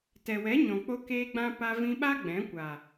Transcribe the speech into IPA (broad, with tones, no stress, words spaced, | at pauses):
tɛ˨wɛ˨˦ɲɔ̃˨k͡po˧ keː˧ɡ͡bã˧ pa˧vĩ˧ɓa˦ ɡ͡bɛ̃˨˦kʷa˨